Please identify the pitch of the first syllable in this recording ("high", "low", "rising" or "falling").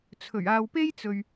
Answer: low